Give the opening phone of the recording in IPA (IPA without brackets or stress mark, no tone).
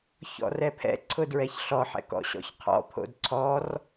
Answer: ç